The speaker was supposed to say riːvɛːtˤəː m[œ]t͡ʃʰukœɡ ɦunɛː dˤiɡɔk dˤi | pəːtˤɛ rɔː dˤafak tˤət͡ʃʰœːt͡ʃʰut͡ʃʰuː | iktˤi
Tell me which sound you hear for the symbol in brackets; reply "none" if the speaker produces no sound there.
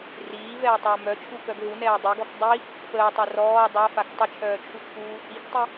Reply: œ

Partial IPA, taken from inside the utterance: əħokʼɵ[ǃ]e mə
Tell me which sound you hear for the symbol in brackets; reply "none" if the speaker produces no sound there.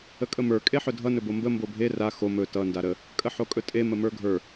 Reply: tʼ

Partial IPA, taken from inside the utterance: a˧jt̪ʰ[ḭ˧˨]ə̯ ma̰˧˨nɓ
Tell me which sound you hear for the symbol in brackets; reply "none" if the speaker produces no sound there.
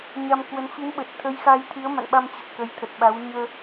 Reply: i˨˦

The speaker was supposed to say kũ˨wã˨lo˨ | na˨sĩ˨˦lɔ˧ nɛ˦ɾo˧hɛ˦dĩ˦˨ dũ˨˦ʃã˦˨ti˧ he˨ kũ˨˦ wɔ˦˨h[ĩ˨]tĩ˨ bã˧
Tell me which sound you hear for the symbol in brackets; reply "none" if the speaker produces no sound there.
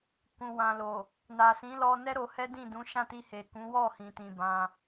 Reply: ĩ˨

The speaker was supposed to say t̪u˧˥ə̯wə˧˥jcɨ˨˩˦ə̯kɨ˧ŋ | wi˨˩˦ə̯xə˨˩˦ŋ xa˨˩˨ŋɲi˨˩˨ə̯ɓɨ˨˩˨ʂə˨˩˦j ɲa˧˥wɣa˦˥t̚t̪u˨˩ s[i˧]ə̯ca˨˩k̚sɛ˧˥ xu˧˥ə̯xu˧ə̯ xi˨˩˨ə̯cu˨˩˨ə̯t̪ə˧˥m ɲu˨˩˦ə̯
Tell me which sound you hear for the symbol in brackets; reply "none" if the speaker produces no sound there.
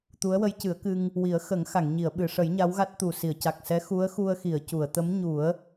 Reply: i˨˩˨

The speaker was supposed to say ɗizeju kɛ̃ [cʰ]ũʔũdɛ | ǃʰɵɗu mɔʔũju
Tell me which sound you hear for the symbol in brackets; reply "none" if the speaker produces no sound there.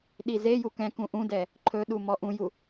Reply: k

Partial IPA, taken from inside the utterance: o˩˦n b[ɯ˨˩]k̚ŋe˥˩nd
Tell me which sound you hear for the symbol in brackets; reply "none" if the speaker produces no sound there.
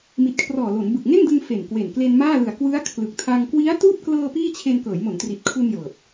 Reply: ɯ˨˩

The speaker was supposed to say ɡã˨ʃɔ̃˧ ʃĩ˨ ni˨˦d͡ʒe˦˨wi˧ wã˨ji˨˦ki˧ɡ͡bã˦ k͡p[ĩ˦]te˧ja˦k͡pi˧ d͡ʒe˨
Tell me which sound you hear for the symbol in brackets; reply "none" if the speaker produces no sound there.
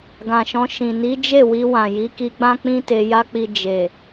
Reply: ĩ˦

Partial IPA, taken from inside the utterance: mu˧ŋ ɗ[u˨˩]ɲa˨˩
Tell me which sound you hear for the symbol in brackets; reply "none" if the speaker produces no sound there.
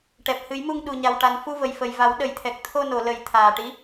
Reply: u˨˩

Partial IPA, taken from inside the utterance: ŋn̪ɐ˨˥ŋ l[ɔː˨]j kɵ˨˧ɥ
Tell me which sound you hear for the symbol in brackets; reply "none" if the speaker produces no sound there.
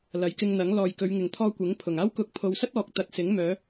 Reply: ɔː˨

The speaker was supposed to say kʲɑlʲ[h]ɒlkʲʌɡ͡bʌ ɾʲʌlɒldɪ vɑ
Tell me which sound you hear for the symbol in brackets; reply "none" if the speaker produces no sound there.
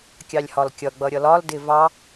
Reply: h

